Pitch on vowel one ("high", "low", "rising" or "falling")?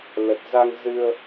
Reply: low